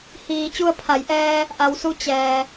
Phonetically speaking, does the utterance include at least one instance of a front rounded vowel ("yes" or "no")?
no